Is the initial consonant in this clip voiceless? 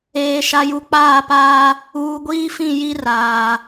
yes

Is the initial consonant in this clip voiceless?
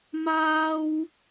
no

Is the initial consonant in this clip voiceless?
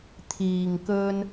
yes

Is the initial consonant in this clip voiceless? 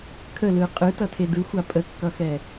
yes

